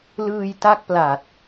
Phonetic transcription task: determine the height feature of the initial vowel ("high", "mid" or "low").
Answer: high